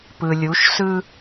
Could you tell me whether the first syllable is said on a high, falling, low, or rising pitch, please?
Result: low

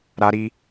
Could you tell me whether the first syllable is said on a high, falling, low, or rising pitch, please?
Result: high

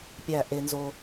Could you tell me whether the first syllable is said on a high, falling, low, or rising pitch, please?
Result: falling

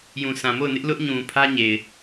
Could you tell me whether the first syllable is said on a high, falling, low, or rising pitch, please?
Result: low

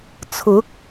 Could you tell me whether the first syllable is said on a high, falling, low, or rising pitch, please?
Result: rising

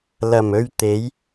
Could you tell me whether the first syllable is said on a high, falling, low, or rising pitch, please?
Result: low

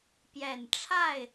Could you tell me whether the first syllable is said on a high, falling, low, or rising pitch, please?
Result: low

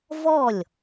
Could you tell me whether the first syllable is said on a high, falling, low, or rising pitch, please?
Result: falling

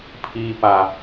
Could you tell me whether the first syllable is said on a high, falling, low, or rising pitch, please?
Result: low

